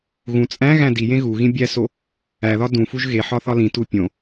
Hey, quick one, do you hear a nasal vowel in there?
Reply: yes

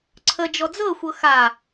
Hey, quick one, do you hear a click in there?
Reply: yes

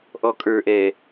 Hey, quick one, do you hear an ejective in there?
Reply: yes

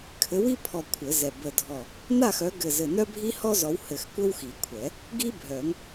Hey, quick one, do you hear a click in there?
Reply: no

